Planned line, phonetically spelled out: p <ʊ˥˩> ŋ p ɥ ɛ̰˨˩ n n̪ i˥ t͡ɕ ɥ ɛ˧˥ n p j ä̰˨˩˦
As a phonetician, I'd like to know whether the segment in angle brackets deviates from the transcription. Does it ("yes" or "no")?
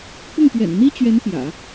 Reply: no